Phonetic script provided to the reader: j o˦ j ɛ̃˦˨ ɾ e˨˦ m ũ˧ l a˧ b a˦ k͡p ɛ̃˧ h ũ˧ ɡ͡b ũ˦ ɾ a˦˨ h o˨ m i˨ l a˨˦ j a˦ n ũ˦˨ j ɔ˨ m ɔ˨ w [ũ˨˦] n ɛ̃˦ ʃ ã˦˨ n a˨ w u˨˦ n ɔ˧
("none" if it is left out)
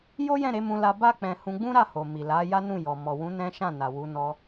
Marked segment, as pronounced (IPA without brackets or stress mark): ũ˨˦